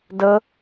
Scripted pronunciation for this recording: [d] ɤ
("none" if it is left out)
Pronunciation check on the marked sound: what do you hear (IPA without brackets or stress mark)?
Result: d